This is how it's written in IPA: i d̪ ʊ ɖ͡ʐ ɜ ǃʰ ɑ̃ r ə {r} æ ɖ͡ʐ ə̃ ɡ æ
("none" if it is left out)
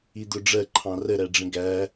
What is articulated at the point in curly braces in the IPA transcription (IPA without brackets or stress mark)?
ɾ